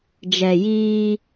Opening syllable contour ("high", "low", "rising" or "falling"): low